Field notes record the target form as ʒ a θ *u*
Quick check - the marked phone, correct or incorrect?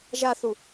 correct